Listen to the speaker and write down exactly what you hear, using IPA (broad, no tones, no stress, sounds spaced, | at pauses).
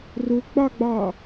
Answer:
r ʊ ɡ͡b ɑ ɡ͡b ɑ